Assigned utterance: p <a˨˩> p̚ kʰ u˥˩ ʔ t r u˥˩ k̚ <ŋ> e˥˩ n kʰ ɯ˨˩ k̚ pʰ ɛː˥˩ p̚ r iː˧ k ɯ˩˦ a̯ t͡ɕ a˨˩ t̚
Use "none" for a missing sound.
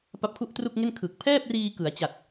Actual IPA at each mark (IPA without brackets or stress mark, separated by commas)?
a˦˥, ŋ